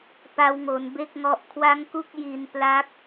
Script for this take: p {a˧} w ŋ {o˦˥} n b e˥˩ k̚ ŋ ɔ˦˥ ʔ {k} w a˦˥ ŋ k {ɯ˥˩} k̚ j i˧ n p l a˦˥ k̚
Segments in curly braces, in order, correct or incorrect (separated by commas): correct, incorrect, incorrect, incorrect